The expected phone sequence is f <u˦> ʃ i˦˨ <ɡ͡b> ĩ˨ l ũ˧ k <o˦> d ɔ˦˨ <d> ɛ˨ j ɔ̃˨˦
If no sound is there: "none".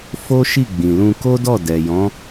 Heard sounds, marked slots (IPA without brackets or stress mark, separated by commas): o˦, ɡ͡b, o˦, d